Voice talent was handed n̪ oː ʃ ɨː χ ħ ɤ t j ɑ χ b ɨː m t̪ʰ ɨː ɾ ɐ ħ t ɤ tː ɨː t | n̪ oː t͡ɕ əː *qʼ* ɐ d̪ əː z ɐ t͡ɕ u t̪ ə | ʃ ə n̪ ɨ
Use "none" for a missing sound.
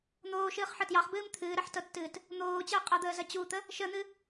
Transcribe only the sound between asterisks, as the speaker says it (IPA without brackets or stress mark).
qʼ